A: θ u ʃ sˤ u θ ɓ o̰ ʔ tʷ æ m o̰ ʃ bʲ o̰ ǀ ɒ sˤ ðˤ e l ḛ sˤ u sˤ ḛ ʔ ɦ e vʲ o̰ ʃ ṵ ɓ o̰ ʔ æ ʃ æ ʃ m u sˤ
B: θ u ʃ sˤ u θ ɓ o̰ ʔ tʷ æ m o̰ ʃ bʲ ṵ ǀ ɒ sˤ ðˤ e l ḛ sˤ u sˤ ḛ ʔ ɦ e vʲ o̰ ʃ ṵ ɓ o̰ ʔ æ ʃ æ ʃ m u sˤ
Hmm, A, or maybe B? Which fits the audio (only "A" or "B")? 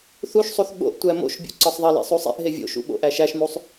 A